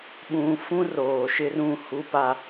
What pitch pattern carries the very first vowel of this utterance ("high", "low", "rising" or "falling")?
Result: low